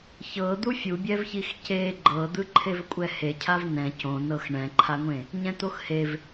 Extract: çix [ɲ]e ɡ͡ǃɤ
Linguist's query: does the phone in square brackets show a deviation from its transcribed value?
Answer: yes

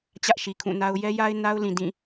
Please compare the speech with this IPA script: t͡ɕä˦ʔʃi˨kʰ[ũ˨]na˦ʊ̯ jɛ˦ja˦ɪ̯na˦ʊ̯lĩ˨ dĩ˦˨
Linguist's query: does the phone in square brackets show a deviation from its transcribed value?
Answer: yes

